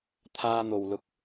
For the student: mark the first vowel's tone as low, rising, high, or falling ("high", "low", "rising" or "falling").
high